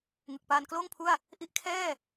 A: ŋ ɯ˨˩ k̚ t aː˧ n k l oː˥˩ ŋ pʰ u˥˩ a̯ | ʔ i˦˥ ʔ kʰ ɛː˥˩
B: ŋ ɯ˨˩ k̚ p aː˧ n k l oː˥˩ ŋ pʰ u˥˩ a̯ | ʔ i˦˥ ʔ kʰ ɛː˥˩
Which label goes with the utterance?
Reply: B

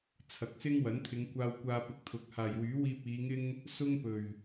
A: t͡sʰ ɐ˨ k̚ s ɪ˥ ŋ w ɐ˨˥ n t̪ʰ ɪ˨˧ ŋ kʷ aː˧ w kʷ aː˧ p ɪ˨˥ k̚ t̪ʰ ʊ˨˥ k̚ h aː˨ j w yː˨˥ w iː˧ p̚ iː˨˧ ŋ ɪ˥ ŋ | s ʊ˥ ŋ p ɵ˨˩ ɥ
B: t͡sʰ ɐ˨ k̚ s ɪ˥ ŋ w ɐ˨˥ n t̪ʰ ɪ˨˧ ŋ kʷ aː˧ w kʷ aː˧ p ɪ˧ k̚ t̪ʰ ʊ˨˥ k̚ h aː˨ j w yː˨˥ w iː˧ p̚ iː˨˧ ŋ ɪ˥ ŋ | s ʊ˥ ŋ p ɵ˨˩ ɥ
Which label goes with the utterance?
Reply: A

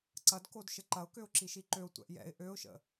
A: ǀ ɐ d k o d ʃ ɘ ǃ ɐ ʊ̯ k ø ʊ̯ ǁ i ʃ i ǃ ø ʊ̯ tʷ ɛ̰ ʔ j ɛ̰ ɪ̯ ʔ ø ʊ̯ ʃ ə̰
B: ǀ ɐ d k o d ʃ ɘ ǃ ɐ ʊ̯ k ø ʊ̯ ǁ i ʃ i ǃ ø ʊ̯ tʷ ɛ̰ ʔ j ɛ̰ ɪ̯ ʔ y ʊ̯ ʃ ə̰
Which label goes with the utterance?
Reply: A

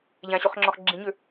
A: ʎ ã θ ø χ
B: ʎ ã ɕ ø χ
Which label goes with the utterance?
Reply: B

